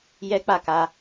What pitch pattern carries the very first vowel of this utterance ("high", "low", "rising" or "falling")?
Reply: high